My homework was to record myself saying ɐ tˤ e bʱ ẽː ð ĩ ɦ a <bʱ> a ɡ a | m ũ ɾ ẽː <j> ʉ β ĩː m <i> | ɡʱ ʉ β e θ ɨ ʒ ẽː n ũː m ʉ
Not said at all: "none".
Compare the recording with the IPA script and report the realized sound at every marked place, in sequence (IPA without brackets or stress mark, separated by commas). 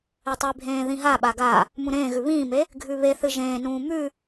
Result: ɓ, ɣ, e